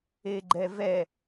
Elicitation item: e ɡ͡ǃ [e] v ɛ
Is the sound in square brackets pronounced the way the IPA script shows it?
no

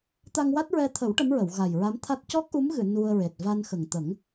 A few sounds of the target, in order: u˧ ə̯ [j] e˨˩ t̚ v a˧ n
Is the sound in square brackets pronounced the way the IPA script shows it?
no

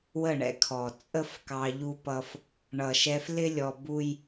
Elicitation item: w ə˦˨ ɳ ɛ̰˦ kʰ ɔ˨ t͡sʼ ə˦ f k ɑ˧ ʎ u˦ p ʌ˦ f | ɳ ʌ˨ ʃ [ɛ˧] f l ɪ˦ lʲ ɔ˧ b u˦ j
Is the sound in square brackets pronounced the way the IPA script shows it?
yes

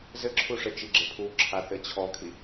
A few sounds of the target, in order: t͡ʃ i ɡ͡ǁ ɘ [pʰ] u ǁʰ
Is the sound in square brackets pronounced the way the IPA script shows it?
yes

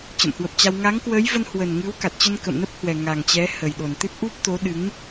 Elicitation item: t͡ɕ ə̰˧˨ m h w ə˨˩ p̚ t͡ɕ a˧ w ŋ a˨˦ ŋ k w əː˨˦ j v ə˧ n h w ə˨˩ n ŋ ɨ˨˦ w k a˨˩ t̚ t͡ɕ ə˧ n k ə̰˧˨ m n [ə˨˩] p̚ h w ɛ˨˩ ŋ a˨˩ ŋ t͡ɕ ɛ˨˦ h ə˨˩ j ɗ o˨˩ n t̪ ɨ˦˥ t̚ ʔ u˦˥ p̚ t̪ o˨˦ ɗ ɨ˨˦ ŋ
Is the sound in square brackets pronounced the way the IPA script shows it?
no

